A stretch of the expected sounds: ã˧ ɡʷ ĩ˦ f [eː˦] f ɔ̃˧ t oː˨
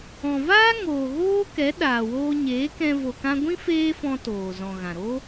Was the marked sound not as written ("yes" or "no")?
no